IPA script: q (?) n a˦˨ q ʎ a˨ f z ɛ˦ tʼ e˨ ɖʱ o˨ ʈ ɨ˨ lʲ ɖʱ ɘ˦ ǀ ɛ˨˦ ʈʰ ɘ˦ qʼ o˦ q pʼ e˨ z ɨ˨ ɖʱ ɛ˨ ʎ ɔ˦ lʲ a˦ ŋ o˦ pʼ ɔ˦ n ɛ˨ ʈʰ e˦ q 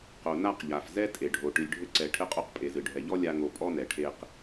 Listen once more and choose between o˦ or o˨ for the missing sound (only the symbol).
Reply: o˨